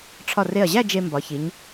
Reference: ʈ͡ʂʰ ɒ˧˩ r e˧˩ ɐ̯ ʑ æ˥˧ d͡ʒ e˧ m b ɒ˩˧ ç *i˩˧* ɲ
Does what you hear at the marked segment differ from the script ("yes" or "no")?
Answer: no